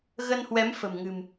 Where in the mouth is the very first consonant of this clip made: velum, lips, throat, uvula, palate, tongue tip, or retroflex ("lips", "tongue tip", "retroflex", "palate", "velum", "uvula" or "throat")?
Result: velum